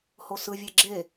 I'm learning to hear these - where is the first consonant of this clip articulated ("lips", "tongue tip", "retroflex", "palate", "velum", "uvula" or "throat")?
throat